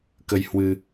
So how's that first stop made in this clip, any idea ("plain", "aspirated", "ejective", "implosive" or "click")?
plain